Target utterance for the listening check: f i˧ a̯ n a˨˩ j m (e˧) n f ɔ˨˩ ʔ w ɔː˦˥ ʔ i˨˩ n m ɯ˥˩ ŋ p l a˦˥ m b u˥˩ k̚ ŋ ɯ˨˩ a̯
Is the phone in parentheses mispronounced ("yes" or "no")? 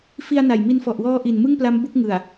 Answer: yes